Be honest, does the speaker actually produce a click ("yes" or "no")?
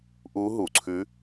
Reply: yes